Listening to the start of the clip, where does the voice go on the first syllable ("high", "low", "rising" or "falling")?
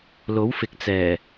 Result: rising